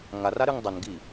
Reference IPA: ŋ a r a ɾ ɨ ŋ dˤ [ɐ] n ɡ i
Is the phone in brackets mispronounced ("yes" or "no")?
no